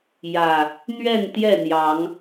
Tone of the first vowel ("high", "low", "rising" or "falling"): low